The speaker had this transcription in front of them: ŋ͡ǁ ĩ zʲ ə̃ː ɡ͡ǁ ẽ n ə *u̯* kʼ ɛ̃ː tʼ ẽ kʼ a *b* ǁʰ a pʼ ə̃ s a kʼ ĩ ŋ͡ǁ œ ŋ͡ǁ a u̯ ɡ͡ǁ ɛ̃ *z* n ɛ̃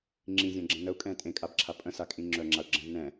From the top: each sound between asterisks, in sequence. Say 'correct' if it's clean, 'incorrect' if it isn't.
correct, correct, correct

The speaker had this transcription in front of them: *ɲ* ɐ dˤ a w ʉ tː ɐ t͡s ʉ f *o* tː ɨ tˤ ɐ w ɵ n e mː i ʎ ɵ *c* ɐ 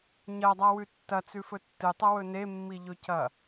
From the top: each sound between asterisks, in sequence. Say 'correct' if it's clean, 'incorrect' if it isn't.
correct, incorrect: ɵ, correct

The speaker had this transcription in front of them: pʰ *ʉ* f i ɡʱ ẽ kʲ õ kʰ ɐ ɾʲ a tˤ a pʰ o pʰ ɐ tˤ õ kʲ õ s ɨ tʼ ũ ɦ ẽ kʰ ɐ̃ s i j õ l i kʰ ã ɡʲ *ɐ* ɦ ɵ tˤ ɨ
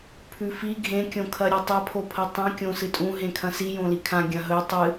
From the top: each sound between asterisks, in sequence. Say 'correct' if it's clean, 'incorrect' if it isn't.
correct, incorrect: ɐ̃

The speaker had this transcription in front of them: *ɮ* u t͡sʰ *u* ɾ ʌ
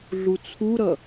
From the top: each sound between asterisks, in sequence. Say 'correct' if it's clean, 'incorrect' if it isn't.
correct, correct

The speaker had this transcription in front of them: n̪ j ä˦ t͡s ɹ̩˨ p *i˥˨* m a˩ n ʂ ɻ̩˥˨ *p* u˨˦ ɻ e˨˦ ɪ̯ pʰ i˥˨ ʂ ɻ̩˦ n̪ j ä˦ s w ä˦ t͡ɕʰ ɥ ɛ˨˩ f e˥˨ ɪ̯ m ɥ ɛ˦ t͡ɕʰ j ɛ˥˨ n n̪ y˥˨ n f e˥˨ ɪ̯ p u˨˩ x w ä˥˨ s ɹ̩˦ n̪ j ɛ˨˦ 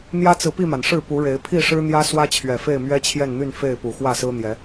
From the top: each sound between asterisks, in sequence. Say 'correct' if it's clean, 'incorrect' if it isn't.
correct, correct

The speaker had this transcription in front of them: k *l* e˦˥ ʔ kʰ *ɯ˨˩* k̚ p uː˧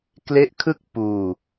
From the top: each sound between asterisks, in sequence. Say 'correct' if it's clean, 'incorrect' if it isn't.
correct, incorrect: ɯ˥˩

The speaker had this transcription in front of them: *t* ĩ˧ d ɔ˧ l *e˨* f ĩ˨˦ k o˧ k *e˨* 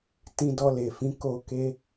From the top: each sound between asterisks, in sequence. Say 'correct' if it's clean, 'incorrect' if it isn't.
correct, correct, incorrect: e˧

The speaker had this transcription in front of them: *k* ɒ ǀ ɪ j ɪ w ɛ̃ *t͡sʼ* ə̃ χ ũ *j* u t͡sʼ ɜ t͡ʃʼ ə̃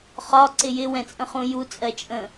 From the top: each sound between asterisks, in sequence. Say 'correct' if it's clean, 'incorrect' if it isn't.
incorrect: χ, correct, correct

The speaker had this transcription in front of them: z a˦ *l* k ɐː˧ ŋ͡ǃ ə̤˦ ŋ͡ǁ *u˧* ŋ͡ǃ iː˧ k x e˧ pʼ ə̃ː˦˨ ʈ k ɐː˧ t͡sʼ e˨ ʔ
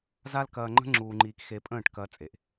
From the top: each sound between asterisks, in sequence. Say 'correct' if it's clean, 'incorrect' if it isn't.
correct, incorrect: uː˧

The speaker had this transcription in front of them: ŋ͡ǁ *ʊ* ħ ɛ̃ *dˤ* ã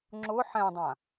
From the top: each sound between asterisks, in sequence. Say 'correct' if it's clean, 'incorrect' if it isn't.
correct, correct

